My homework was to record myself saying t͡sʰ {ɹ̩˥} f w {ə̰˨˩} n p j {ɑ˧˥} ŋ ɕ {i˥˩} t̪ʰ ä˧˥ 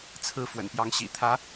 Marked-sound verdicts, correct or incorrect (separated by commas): incorrect, correct, correct, incorrect